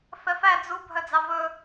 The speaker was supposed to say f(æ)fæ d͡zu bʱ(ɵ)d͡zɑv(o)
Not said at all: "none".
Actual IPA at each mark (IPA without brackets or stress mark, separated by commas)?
ɛ, œ, ɵ